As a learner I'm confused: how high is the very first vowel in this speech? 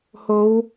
mid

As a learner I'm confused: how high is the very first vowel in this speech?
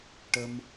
mid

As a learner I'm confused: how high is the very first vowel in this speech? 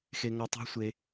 mid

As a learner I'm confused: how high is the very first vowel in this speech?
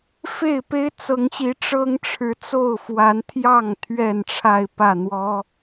mid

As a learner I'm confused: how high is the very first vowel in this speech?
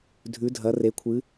high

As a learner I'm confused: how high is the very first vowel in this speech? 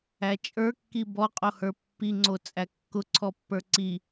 low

